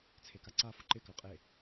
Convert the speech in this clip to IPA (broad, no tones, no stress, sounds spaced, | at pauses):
t͡sʰ e k a ǀ a f ʊ ǃ ɪ k ɑ qʼ e